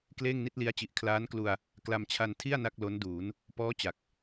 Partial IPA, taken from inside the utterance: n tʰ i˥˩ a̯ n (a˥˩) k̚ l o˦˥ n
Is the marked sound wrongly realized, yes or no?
no